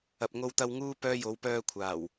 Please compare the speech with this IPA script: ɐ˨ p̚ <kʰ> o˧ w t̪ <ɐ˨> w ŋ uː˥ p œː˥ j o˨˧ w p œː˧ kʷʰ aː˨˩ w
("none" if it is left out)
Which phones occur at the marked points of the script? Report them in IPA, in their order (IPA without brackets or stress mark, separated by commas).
ŋ, ɐ˧